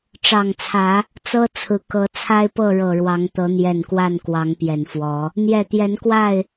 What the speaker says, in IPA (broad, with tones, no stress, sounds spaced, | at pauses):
ʈ͡ʂ ɑ˨˩ ŋ t͡sʰ ä˨˦ | t͡s ɤ˦ t͡sʰ ɹ̩˨˦ k ɤ˨˦ t͡sʰ a˦ ɪ̯ p ɤ˥˨ ɻ ɤ˨˩ ɻ w ɑ˨˦ ŋ t̪ ɤ˨˦ n̪ j ɛ˨˩ n k w a˥˨ n k w ɑ˨˦ ŋ p j ɛ˨˩ n f w ɔ˨˦ | n̪ j ɛ˨˩ t̪ j ɛ˨˦ n k w a˥˨ ɪ̯